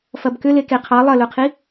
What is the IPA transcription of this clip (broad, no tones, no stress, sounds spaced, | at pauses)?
f ɐ b k ʏ l e k e qʰ ɑ lˠ ɐ l ɵ qʰ i